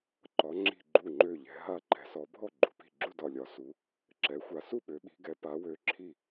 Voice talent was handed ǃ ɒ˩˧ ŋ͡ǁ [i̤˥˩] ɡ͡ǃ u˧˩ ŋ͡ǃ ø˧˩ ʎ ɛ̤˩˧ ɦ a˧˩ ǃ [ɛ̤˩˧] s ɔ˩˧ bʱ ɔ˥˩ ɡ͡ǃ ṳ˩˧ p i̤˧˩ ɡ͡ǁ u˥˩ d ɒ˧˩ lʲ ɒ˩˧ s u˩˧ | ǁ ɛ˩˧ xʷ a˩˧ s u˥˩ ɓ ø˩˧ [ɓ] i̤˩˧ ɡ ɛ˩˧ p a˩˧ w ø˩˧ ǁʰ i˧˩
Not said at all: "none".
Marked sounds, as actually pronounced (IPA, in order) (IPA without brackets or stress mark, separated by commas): i̤˧˩, ɛ̤˩˧, ɓ